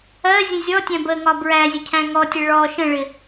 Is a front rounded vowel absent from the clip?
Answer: yes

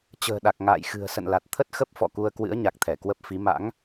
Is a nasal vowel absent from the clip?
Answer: yes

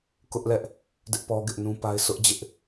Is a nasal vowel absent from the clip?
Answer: no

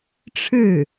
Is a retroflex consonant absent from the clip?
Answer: no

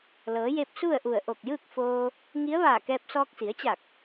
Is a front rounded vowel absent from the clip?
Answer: yes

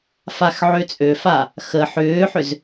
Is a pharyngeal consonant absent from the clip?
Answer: no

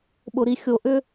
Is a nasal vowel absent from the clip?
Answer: yes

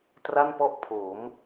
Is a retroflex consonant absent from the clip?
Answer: yes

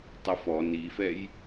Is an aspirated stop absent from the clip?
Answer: yes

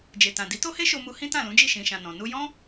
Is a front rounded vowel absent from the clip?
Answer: yes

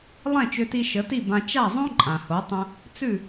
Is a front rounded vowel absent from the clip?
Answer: no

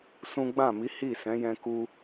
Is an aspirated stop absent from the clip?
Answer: yes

